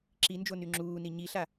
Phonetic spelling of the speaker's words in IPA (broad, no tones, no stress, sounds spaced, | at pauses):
ǁ i n d͡ʒ o n y ŋ͡ǁ uː n i ɲ i ɬ a